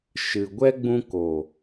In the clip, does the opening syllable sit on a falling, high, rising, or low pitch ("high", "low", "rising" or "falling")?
low